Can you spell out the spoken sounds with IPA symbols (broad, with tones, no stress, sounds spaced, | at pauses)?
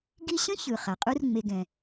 ɡ i˦ ɕ ə̃˥ ç ɯ˩ χ a˩ qʼ u˥ r ŋ͡m e˨ ɡ ɛ̃˩